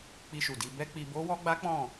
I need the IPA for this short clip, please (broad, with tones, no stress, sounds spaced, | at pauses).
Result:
k͡p i˧ ʃ u˨ d i˧ b ɛ˦ k͡p i˧ b o˦ w ɔ˦ ɡ͡b a˦ k͡p ɔ̃˦˨